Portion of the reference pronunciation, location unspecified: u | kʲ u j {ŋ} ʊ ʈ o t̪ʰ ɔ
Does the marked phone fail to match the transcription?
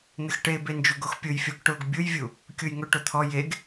no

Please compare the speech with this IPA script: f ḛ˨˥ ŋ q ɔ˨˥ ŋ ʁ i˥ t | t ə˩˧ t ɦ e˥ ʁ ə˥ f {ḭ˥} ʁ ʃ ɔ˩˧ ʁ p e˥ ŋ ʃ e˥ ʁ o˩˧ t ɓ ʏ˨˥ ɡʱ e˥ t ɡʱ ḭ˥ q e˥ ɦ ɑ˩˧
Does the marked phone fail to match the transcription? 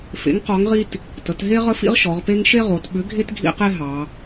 no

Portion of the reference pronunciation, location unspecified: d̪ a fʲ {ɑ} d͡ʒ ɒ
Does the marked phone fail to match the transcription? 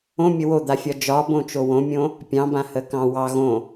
yes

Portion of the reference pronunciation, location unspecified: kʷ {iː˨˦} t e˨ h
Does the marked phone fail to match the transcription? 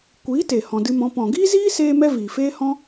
no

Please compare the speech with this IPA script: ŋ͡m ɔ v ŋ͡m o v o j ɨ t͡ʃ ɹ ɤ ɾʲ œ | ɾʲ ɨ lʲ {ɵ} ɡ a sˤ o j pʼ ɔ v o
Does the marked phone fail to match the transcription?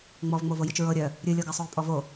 yes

